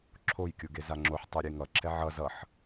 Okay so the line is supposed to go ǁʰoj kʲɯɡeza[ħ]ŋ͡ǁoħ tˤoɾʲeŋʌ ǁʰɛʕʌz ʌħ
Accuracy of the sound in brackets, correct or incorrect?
incorrect